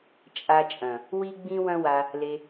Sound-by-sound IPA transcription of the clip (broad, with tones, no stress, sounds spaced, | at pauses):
t͡ʃʼ a˧ t͡ʃʼ ɐ̃˨ | w i˦ ɡ͡b ĩ˦ w ɐ̃˦ w a˧ | l e˧